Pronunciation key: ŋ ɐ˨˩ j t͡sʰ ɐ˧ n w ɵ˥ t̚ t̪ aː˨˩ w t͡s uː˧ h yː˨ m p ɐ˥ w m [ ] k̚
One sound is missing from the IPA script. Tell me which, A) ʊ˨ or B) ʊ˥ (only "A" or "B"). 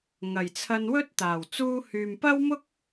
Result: B